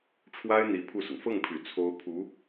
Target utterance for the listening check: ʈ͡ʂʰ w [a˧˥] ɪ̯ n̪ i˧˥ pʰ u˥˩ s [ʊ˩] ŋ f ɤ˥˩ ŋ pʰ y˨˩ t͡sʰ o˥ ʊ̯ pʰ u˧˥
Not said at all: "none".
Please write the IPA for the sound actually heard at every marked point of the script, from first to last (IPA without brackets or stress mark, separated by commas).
a˥, ʊ˩